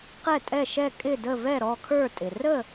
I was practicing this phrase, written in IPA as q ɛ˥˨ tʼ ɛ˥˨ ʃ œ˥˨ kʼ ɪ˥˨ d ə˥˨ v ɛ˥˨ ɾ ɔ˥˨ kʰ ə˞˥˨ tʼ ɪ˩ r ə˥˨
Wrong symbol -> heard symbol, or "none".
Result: œ˥˨ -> ɛ˥˨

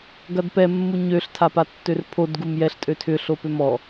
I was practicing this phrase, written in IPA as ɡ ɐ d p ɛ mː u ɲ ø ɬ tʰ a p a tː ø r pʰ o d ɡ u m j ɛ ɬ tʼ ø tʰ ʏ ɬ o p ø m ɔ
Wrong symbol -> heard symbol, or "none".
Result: none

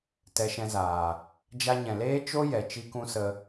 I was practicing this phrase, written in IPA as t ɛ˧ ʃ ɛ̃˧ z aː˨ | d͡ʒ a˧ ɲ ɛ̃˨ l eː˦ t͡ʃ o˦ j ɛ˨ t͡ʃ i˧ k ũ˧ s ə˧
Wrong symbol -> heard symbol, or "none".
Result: none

